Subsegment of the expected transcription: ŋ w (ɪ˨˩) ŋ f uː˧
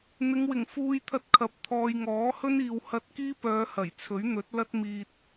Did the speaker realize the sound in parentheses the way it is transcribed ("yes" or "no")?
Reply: yes